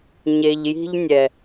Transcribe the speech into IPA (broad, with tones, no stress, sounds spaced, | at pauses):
ɲ e˨ ʎ j i̤˧ ʎ nʲ ɛ˨